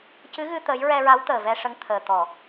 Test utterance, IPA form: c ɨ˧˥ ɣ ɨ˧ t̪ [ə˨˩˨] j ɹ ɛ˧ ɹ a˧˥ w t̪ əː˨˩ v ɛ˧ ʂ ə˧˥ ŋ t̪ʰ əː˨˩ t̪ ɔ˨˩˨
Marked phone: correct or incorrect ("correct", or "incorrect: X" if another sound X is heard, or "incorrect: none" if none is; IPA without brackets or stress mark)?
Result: incorrect: ə˧˥